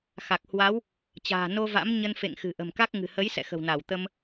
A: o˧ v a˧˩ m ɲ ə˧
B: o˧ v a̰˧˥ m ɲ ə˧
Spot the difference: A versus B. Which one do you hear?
B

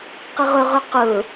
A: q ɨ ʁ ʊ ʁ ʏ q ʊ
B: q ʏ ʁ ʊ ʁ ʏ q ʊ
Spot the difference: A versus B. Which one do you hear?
A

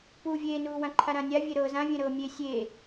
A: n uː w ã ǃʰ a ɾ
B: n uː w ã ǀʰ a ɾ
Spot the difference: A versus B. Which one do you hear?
A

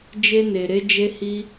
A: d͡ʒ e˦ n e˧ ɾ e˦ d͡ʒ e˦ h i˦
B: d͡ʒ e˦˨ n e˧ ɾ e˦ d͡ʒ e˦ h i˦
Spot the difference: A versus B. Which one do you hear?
A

